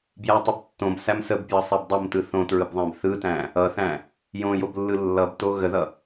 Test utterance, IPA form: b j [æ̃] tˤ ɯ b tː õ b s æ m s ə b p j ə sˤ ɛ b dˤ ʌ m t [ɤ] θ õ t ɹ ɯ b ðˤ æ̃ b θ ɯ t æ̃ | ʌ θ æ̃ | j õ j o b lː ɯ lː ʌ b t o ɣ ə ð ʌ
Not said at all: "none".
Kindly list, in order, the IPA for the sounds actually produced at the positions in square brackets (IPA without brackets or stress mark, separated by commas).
æ, ɯ